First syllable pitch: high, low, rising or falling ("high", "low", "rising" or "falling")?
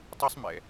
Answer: high